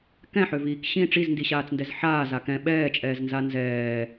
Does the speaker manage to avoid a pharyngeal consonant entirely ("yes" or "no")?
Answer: no